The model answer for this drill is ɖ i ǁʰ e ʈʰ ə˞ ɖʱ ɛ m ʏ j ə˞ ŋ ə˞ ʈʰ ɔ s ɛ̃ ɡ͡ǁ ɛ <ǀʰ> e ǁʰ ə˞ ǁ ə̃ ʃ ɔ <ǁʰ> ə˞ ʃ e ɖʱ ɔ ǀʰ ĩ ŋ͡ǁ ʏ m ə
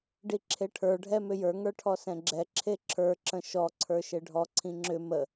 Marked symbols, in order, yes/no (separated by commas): no, no